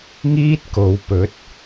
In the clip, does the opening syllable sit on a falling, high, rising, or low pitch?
high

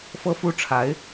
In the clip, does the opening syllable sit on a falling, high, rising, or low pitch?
high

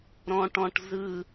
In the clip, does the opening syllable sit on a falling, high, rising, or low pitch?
low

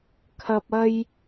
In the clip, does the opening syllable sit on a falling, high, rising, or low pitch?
low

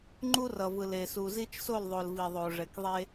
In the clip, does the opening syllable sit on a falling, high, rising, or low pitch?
high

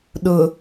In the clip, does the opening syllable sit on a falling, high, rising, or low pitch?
low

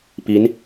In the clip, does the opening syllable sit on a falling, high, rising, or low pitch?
rising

